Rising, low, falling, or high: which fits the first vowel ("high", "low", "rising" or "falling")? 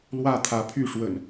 falling